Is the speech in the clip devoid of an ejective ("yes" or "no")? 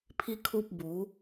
yes